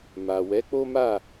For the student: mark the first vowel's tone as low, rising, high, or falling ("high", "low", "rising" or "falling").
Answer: low